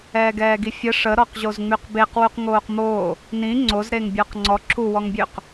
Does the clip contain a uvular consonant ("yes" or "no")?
yes